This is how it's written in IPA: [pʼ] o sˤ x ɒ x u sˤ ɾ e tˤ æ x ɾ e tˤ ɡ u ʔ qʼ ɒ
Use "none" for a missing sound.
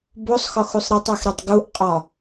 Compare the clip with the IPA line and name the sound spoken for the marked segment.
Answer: b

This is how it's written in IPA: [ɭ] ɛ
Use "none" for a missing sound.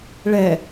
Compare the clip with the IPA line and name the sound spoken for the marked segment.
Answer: ɭ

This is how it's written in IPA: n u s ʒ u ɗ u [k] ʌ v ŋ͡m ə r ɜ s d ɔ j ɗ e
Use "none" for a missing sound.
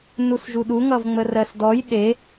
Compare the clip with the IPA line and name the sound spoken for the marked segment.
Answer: ŋ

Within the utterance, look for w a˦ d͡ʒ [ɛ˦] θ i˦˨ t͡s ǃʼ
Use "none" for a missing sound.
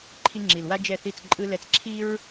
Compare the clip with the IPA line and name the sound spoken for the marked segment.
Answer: ɛ˦˨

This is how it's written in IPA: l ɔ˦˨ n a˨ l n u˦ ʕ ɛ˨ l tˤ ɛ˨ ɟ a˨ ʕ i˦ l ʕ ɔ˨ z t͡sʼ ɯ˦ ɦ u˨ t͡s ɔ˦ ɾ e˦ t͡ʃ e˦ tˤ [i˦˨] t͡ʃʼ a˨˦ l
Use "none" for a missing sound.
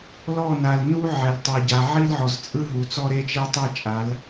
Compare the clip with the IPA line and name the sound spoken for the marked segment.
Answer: i˦˨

